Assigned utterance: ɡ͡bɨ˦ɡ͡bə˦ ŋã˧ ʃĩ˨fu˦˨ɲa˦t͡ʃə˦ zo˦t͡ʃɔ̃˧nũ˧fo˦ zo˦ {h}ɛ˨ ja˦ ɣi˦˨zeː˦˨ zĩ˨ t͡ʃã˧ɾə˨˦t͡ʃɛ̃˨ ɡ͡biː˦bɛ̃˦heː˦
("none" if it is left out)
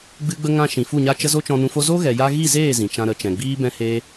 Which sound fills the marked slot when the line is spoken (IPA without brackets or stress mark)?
ɣ